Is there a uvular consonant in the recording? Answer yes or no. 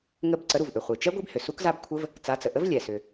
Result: yes